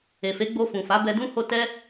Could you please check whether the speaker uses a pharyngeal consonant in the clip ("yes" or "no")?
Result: no